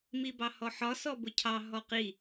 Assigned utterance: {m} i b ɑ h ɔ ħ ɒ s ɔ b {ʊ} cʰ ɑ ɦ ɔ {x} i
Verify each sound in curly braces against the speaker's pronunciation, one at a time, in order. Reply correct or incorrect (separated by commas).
correct, correct, incorrect